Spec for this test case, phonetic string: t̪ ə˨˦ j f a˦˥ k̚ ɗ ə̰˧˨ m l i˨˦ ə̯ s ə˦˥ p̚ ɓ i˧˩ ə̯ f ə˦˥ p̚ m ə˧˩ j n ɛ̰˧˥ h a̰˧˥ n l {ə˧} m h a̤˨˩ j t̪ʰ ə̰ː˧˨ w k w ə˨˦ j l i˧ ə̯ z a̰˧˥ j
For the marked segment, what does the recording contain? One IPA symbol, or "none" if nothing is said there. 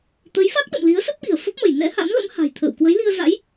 ə̰˧˥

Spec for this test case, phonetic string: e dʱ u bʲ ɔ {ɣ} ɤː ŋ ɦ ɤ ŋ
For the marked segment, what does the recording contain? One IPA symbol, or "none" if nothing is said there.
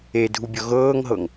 ɣ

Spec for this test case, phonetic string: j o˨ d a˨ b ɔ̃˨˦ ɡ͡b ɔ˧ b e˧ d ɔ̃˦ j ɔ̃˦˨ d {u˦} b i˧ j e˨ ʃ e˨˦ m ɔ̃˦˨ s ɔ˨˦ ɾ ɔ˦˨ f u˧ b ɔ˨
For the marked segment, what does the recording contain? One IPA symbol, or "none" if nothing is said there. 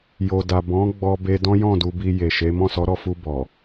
u˧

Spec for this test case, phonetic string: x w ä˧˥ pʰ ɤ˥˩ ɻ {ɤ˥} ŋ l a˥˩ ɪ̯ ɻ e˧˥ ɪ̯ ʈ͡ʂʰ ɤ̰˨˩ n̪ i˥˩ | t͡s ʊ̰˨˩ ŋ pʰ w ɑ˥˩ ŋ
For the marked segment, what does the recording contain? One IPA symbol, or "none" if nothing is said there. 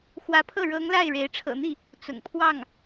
ɤ˧˥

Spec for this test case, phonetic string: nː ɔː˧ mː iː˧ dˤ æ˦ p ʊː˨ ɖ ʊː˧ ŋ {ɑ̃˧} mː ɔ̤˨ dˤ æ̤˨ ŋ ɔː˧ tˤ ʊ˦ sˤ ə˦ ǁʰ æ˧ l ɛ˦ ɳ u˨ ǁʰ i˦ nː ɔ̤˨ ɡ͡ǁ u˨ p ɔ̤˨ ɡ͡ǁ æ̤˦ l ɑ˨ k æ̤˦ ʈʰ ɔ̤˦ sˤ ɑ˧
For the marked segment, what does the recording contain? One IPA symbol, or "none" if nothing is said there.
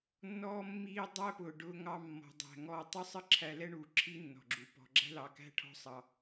ɑ˧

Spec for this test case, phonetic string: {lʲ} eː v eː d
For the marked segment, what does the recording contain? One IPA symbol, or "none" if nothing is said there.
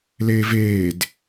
l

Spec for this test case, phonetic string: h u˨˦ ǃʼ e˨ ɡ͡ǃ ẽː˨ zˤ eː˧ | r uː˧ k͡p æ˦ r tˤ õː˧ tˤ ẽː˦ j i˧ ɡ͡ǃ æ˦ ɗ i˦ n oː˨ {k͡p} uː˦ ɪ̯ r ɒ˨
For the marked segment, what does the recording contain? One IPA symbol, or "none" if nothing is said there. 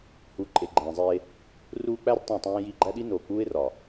k͡p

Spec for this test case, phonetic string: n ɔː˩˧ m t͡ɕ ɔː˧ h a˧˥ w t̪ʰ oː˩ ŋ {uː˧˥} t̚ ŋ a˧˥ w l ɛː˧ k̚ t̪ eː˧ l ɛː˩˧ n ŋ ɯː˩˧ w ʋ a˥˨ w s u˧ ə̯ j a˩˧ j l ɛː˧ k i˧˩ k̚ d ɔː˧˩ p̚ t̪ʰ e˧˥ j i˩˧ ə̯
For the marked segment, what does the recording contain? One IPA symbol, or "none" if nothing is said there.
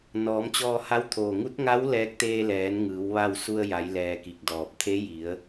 u˧˥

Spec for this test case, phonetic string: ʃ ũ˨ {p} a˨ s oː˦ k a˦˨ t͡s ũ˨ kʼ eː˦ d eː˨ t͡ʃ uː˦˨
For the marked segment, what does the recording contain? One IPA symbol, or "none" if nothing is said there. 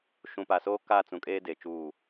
p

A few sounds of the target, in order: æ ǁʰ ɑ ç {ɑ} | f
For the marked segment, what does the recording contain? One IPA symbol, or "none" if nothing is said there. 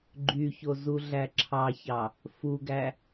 ɑ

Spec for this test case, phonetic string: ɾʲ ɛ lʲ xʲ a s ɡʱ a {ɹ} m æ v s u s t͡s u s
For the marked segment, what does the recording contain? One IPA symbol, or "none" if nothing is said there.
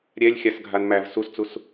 n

